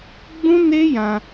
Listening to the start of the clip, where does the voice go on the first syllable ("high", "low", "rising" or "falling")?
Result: high